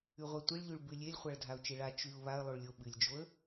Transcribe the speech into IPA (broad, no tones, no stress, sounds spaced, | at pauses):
ʉ ʁʷ a tʷ i ɭ ʎ ʉ ɭ b ʉ lʲ e lʲ χʷ a ɭ dʱ a ʊ̯ t͡ʃ e ɭ a t͡ʃ ʉ ʊ̯ β a ə̯ lˠ o ɭ lʲ o ɓ ɨ lʲ d͡ʒ o ə̯